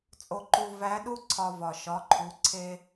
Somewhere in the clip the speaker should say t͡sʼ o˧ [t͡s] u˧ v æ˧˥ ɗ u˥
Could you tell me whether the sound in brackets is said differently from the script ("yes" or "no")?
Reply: yes